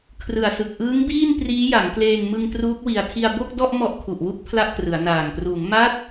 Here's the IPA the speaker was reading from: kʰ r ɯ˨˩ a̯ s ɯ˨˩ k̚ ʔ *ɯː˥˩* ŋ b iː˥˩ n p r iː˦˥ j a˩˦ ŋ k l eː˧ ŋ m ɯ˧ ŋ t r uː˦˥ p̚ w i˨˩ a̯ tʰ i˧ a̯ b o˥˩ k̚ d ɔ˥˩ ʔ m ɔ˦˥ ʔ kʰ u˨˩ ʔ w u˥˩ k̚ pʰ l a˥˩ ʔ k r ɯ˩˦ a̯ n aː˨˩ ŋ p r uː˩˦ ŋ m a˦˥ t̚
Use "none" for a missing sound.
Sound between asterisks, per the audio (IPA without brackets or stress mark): ɯː˦˥